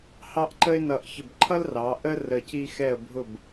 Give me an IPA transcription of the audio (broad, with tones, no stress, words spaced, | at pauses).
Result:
hɑ˥˧ʔǃə˥ɪ̯nʌ˧˩ʔ çə˧˩bǃʰʌ˥lrɑ˩˧ ʔə˥ rə˧˩ ci˧xɛ˧˩ə̯bʱʊ˧˩b